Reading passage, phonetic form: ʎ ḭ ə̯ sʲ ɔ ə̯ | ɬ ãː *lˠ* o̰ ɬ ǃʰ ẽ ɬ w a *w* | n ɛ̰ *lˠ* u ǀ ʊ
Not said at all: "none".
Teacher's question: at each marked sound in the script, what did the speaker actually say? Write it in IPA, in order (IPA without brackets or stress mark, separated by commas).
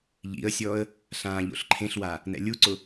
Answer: ʎ, none, lʲ